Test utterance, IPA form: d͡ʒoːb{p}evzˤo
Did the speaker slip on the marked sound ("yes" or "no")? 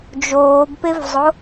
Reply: no